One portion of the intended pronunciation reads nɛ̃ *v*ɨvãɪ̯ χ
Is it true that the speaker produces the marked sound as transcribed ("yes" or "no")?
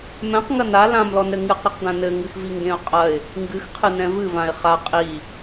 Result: yes